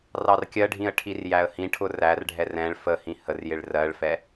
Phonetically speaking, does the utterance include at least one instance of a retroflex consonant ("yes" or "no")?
yes